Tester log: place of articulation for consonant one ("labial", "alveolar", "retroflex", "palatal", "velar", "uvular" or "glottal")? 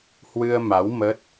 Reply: glottal